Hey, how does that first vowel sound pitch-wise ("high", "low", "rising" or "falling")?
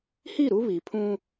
falling